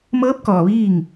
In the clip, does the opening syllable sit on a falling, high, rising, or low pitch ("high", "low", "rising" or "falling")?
rising